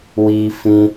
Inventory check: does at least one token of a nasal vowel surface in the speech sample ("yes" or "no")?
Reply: yes